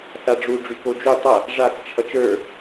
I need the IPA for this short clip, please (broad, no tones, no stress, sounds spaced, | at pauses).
θ a ɖ͡ʐ u ɖ͡ʐ y k o d͡ʒ u tˤ ʌ | ʐ a k t͡ʃʰ ʌ t͡ʃ ə˞